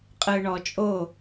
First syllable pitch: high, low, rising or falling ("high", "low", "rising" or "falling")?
low